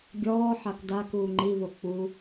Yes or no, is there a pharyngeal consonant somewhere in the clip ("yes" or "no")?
yes